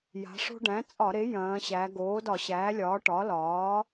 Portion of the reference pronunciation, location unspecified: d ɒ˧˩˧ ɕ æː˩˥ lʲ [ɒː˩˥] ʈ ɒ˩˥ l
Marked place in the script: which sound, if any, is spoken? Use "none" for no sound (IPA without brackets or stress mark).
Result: ɒː˩˥